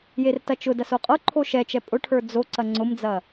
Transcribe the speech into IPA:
j e r t ɐ t͡ʃ ʊ d ɐ s o qʼ ɤ ǃʰ o ʃ ɛ t͡ʃ ɛ pʼ ʊ ʈʰ ə˞ d͡z o ǀ ɐ ŋ͡ǀ ʊ m d͡z ɐ

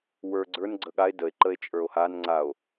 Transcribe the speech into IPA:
w ə˞ ɡ͡ǀ ə˞ n ɡ͡ǀ ə ɠ a e̯ d ə e̯ ǃ ə e̯ t͡ʃʼ ə˞ o̯ h a n ŋ͡ǀ a o̯

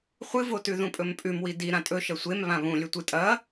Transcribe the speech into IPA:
χʷ ɨ v o t ʉ ð ũ pʼ ɵ m pʼ ʉ m w i d i ɾ ã tʼ ɵ ʃ ɐ sʷ e m β ã β ũ lʲ ɵ tʷ ɨ tʼ ɐ

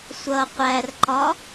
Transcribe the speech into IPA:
sʷ ʌ qʷ æ r ǃ ɒ

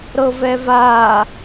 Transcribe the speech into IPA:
ɾ ɤ v ɛ v aː

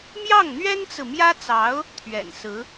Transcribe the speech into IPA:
m j ɑ˥˩ ŋ n̪ ɥ ɛ˥ n t͡s ɹ̩˨ m j ä˥ t͡s ɑ˧˥ ʊ̯ | t̪ʰ ɥ ɛ̰˨˩ n s ɹ̩˧˥

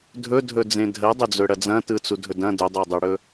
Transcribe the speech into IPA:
dʱ ɵ dʱ ɵ d͡z ẽ dʱ ɜ dˤ ɵ d͡z ɵ ɽ ɐ d͡z ɐ̃ t ɯ t͡s u dʱ ɵ d ɐ̃ d ɵ dˤ ɜ dˤ ɯ ɽ ɵ

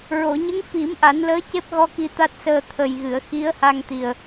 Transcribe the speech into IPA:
ɹ o˨˩˨ ɲ ə˧˥ ŋ f i˨˩˦ m ʔ a˨˩˦ n l əː˧˥ c e˦˥ p̚ ɣ ɔ˧ k i˧ t̪ a˦˥ t̚ s əː˧ t̪ʰ ə˨˩ j ɣ ɨ˨˩˨ ə̯ x i˧˥ ə̯ h a˧ ŋ t̪ i˨˩ ə̯

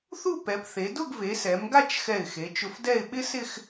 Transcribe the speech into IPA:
θ u˥˧ p ɛ˩˧ p θ e˩˧ d ʊ˥˧ ɡ v e˩˧ s ɛ˩˧ m ɡ a˥˧ t͡ʃ x ɛ˧˩ ɪ̯ x e˩˧ t͡ʃ ʊ˧ f d ɛ˥˧ ɪ̯ ɓ ɪ˥ s ɪ˥˧ x

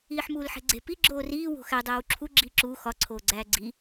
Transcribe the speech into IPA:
iː ħ m uː l ħ e̤ ɡ͡ǀ e̤ p i ɡ͡ǁ oː r iː w o̤ x æ dˤ æː w ǁʰ u ɡ͡ǁ iː ǁ uː x ɒ ǀʰ oː ɡ͡ǀ æː ɡ͡ǀ i

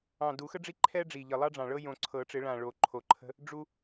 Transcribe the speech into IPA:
ɑ̃˨˩ d u˨˩˦ x ə˦ ɖ͡ʐ i˦ ǃʰ ɛ˦ ɖ͡ʐ i˨˩ ʎ ə˨˩ lˠ ɑ˦ ɖ͡ʐ ɑ̃˨˩ ɭ ɤ˦ j õ˨˩ ǀʰ ɤ˨˩˦ ʈ͡ʂ ɪ˨˩˦ ɭ ã˨˩ ɭ o˨˩ ǃʰ o˨˩ ǃʰ ə̤˦ | ɖ͡ʐ u˦

